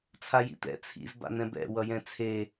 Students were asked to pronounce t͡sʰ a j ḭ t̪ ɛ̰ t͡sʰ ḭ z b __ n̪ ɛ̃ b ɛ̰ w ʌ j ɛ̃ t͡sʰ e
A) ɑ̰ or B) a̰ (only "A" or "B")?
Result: B